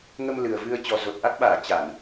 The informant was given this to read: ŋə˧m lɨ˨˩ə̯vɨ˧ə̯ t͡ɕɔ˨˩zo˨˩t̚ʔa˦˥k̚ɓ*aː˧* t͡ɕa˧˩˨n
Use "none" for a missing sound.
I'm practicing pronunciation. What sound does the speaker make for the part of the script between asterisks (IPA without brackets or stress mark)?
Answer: aː˧˩